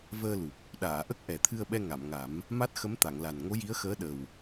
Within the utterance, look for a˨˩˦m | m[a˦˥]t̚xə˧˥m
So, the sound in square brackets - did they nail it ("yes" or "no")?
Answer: yes